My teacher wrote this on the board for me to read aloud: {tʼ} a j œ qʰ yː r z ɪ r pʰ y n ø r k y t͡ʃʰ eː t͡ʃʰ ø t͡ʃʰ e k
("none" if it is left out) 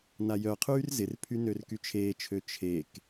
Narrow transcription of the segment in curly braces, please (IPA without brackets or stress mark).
n